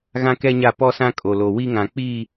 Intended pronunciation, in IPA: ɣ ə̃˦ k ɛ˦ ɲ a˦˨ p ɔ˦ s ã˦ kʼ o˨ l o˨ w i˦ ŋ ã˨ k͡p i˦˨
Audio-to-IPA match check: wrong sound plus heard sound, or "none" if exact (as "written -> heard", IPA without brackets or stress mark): ə̃˦ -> ã˦